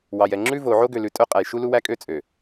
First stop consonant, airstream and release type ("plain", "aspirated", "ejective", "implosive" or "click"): click